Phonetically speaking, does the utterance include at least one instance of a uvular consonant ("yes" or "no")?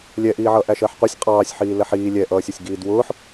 yes